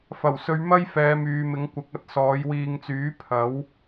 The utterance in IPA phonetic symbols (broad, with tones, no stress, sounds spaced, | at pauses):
f ɐ˨˩ w s ɵ˨˧ ɥ m ɐ˥ j f ɛː˨˧ m yː˨ m ɪ˨˥ ŋ kʷ ɐ˨˥ k̚ ɐ˧ t̚ s ɔː˨˥ j w iː˧ ŋ t͡s yː˨˥ pʰ ɐ˨˥ w